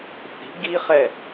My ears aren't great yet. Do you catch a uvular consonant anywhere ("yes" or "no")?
yes